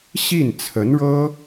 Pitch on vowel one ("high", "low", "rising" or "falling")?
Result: falling